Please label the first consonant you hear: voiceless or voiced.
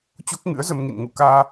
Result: voiceless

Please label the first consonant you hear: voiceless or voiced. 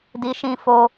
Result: voiced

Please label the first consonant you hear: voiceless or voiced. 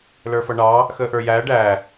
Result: voiced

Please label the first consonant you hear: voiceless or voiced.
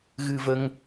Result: voiced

